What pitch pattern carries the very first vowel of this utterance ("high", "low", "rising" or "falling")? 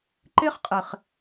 high